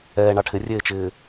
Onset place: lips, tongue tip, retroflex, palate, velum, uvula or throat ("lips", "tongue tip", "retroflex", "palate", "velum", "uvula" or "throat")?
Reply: retroflex